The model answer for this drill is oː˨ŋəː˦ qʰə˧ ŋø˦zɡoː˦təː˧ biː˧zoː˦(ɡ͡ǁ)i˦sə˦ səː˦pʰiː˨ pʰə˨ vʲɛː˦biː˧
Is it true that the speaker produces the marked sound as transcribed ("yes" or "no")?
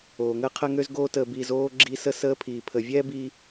yes